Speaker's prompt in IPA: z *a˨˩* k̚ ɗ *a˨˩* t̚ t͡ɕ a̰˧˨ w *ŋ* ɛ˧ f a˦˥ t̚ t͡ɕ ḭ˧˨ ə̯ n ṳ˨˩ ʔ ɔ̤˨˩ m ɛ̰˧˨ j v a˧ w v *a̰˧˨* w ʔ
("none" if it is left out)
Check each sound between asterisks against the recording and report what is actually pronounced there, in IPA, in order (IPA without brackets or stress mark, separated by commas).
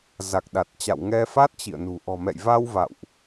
a˨˩, a˨˩, ŋ, a̰˧˨